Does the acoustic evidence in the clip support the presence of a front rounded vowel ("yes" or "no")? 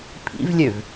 yes